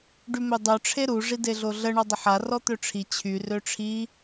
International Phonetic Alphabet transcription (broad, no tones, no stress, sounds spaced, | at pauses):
ɖ y m ø dˤ œ ʈ͡ʂʰ e ɾ u ʐ i d e ɮ o ɮ ə ɳ ɔ dˤ ə ħ a r ɔ t̪ ø ʈ͡ʂʰ i t͡ɕʰ y r ø ʈ͡ʂʰ i